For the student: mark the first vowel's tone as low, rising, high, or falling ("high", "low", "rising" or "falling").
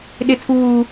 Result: high